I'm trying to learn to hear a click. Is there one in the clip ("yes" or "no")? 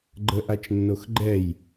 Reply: yes